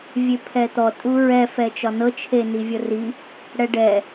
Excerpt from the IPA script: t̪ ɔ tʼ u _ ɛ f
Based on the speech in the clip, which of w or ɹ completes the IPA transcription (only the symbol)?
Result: ɹ